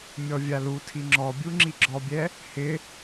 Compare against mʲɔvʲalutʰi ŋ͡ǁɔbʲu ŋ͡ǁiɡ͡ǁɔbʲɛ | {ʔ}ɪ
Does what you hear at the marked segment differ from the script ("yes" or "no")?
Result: yes